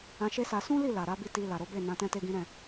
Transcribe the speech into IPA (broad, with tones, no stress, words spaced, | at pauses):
ã˧ʃe˦sa˧ sũ˦li˦˨ la˨ɾa˨˦bi˦˨ ti˧ la˨ɾo˨˦be˦˨ nã˧ tɛ̃˦te˦ɡĩ˦ ɾɛ̃˦˨